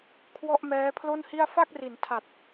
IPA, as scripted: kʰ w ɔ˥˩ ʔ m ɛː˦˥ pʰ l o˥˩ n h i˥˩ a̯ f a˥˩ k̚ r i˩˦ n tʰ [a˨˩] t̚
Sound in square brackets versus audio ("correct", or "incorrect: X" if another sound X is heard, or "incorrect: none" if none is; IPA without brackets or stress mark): correct